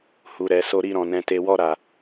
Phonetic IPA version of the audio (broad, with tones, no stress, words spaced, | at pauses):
hu˨ɾɛ˨ so˧ɾi˧ɾɔ̃˨ nɛ̃˨te˨wɔ˧ ɾa˨